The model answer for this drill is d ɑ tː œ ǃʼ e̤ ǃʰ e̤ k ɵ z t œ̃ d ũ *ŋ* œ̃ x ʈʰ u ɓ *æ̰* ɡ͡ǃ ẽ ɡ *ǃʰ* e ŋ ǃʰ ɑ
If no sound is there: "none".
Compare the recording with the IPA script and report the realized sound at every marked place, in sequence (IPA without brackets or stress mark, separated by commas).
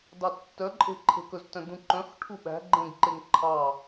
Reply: ǃ, æ̤, ǃ